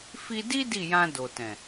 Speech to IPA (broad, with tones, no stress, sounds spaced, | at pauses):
f i˧ d i˦ d i˦˨ j ã˧ d o˨ t ɛ̃˨